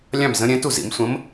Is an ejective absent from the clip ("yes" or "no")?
yes